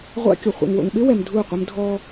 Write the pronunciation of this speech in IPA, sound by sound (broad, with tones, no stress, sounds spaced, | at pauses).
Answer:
ʁʷ a̰˦ kʲ o˨ χʷ a̰˨ ŋ w o̰˨ ŋ ɓ ɪ˦ w ɛ˨ m dʱ u˦˨ qʷ ɪ˦ m dʱ ɔ˦